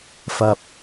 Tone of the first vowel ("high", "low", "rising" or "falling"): low